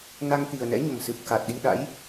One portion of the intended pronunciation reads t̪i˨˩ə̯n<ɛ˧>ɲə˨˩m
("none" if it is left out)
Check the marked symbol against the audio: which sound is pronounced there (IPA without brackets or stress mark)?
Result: ɛ̰˧˥